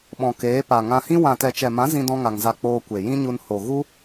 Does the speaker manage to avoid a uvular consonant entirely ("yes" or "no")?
yes